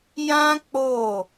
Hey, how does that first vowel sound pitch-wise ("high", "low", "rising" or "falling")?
high